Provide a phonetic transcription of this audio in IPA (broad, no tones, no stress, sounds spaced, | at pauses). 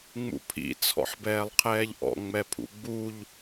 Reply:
ŋ͡m ṵ pʰ ḭ t͡sʰ ɔ̰ ħ b ɛː lˠ qʰ ɛː ʎ ʔ ɔ̰ ŋ͡m ɛ pʰ ṵ ɡ͡b u ʎ